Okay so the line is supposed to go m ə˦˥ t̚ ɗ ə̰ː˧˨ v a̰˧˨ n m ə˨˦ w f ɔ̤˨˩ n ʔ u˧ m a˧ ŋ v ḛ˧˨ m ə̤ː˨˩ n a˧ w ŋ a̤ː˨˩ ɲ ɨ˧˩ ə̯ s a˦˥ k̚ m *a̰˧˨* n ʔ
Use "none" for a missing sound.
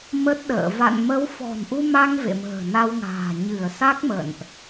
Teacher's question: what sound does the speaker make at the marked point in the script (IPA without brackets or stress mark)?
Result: ə̰˧˨